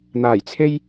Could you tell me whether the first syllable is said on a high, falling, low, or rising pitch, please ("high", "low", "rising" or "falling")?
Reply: low